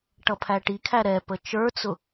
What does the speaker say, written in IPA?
ʈʌpʰæʈikʰæ ɾɛpə t͡ʃə˞t͡sʊ

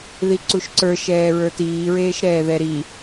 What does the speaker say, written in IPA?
ðiǀuʃǀə˞ ʃɛːɹə˞tiː ɹeːʃɾɛːðɛɾi

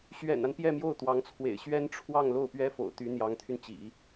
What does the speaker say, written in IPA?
ɕɥɛ̰˨˩na˦n pjɛ˥˧mjo˥˩ʊ̯t̪wɑ˧˥ŋt͡sʰwḛ˨˩ɪ̯ ɕɥɛ˥nʈ͡ʂʰwɑ˥˧ŋ lo˥˩ʊ̯pɥɛ˥fo̰˨˩ʊ̯t̪y˧˥ n̪jɑ˧˥ŋt̪ʰy˧nt͡ɕḭ˨˩˦

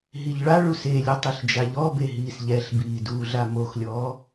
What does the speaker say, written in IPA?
ɦiʎɭaɭus elʲɘ tˤiɬd͡ʒaʎɔbe ɦiːsʎɛɬbiː duːɮamoxlʲɔː

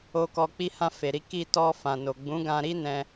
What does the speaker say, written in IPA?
o˨kɔ˨ k͡pi˧hã˧ fe˨ɾi˧ ki˧tɔ˧ fã˨no˨ ɡ͡bũ˨˦ɡã˧ɾi˦nɛ̃˧

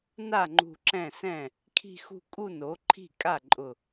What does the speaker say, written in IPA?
na˥˩ŋ͡ǃṳ˧˩ ǁɛ̃˥˩sɛ̃˥˩ | kʰi̤˥˧xṳ˥˧ kʼu˥˧no˩˥ǃʰi̤˥˩ kʼa˥˩ǃʼʊ˧˩

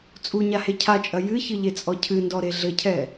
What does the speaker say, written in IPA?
t͡sʼuɲahe cʰat͡ʃʼɐ jɨçɨʎet͡sʼɔ cʰɨndɔɾe ɮɘcʰɛ

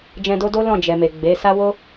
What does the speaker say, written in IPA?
d͡ʒɛ̃˧do˦ do˦lɔ̃˦˨ d͡ʒɛ˨me˨ɡ͡be˨˦ sa˦wo˦

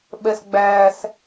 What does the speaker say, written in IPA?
ɓɛsɡ͡bæːs

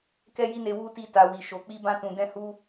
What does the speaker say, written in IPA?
kɛ˦ji˦ne˧ wu˦ti˧ ta˨wi˨ʃo˨ k͡pi˧bã˧ tũ˨dɛ̃˧hu˧

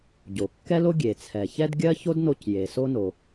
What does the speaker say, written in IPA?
ɟo˩kːɛ˥lo˥ ɡʲe˩t͡sʰɛ˩ çɛ˥dɡʲɜ˥ ço˥dno˧c je˩so˥no˩

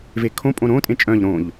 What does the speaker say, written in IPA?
vekʰõpʼõ ɾõtʼẽ t͡ʃʼœ̃ʎ ɾõʎ

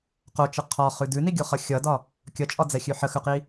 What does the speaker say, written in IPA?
qot͡ʃə qʰɒχʉ dʉniɡʲoχʌ xʲʌdɒ | kʲʌt͡ʃʼɒd͡zɛxʲʉ ħəxʉqi

